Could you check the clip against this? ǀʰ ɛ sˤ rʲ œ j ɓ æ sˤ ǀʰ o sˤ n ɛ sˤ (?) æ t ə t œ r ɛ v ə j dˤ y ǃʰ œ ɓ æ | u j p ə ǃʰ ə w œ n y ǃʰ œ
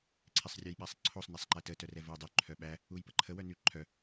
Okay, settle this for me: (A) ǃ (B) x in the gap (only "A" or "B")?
A